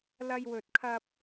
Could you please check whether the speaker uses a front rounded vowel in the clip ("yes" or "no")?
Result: no